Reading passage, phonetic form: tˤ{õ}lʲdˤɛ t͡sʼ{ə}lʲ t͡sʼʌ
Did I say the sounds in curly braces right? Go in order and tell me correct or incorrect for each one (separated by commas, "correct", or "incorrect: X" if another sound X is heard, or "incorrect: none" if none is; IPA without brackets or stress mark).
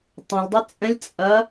correct, incorrect: ə̃